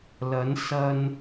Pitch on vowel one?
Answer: rising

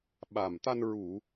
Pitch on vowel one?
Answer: low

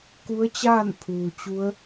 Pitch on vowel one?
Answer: rising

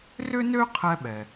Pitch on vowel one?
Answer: high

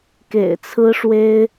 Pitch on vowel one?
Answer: low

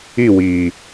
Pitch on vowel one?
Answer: falling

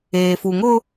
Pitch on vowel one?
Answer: low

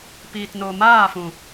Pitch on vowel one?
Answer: low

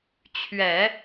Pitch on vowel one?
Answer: low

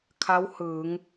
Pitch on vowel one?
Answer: rising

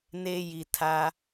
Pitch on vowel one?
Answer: high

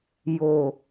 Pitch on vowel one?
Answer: low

